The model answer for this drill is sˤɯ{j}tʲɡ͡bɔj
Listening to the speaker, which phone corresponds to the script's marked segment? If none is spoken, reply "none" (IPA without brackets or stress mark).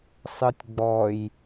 none